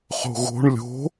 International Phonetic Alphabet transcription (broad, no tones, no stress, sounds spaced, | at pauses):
χ o̤ ɣ o̤ ɳ lʲ o̤